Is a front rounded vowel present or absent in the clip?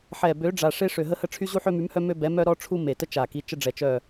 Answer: present